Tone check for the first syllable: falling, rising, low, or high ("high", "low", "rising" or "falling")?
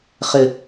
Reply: low